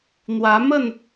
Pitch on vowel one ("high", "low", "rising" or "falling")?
rising